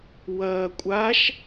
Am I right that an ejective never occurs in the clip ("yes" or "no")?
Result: no